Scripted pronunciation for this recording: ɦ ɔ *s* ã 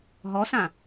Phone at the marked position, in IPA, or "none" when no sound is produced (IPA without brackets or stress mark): s